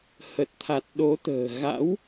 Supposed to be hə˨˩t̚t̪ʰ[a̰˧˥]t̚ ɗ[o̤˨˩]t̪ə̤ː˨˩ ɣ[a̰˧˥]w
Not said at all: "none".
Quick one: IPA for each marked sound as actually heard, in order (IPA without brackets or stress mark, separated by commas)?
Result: a˨˩, o˨˦, a̰˧˥